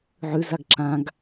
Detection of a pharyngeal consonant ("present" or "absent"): present